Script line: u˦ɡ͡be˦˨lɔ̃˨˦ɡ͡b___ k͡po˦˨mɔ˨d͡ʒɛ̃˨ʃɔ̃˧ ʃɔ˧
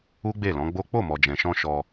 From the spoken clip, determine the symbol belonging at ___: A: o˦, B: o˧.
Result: A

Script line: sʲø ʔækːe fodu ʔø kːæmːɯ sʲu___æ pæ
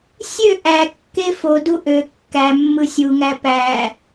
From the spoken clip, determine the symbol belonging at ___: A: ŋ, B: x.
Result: A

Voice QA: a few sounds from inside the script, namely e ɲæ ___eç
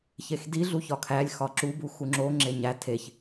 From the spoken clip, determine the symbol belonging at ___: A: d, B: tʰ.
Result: B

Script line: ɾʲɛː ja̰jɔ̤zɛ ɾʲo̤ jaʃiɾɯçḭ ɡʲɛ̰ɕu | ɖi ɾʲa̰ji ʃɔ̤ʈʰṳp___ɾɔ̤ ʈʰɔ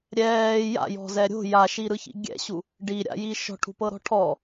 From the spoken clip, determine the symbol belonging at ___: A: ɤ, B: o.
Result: A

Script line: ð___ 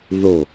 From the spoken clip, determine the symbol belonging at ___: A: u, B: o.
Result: B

